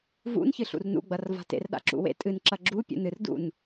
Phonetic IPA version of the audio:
v ṵ n ç ɨ ɬ ṵ r n ṵ ɡ͡b ɐ r v a̤ t ḛ r ɗ a̰ ǁ ṵ w ḛ tʼ ɨ n ǁ ɐ ɡ͡ǁ u pʲ ṵ n ɨ r d ṵ n

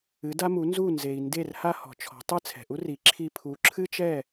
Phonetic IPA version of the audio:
ɨ˩˥ d a˥ m u˩˥ n z u˥˩ n z e˩ i̯ n d e˥˩ r h a˥ h ɔ̤˩ t͡ʃʰ ɔ̤˩˥ tˤ ɨ˥˩ t͡sʰ ɛ̤˩ ʔ u˥ r i˩˥ ǁʰ i˧ pʰ u˩˥ ǁʰ ɨ˥ t͡ʃ ɛ˥˩

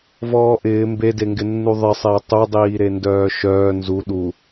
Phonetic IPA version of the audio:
v ɔː ʔ ɪː m b e d e ŋ ɡ ɪ nː u ðˤ ɪ sˤ ɪː tˤ u dˤ iː ɾ e n d œː ʃ œː n z u ɗ u

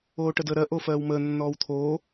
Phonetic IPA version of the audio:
oː ʈ ə d əː ɾ ɜ ʔ o f ɜː w m əː nː ɔː w t̪ʰ oː

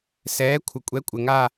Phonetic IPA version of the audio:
s ɛː˨˥ kʷʰ ə˨ kʷʼ ɛ˨˥ kʷʼ ɘ˨ ŋ a˥˧

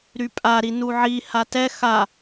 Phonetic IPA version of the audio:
ɾ y pʼ a ɾ i n u ʕ i h a t ɛ x a

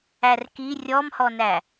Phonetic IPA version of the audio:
æ r k i rʲ ɔ m h ɔ n æ

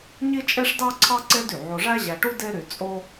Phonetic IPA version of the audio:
ɲ i˥ t͡ʃʼ e˥ ʂ d ɑ˥ ǀʰ ɑ˥ ǀ e˥ d y˩ ʕ o˧ ʐ æ˥ ʑ æ˧ ʈ u˥ d e˥ ɾ y˧ t͡sʼ o˥

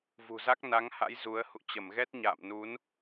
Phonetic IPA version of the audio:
v ṳ˨˩ z a˦˥ k̚ n a˨˦ ŋ h a̰˧˥ j z u˨˦ ə̯ h ṵ˧˨ t͡ɕ ə˧˩ m ɣ ɛ˦˥ t̚ ɲ a̰ː˧˨ m n u˨˦ n

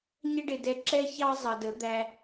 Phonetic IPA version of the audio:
ɲ ə˧ ɖ ɪ˨ d ɛ˨ ǁ ɛ˧ ç ɑ˦ zˤ ʌ˨ d ə˨˦ d̪ æ˧

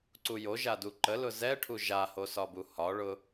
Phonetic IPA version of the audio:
ǀ u j o ʒ a d u ǃ ə l ʊ z ɛ ʈʰ u ʒ a h o s ɒ b u h ɒ ɭ ʊ

